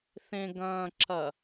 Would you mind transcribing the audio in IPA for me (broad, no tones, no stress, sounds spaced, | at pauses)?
θ ẽ ɡ ɐ̃ː ǁ ɐ